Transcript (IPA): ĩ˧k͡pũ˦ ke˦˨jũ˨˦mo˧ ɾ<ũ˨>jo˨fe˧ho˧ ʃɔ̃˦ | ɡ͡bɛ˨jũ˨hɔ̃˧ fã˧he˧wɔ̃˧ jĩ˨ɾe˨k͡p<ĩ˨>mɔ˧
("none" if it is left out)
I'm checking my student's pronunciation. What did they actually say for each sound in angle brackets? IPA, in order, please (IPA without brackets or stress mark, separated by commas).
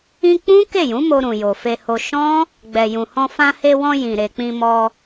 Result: ũ˨, ĩ˧